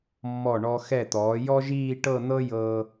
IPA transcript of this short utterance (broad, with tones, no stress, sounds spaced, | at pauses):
mː ɔ˧˩ ɳ ɔ˧ x ɛ˧˩ t̪ ɔː˩˧ j ɔ˥ ʒ iː˥˧ ʈ ɤ˥˧ n̪ ɤ˥ j ɤ˧